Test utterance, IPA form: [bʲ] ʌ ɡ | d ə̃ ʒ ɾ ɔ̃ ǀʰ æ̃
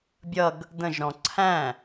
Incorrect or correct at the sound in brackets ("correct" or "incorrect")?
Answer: correct